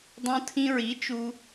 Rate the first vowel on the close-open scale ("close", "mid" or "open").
mid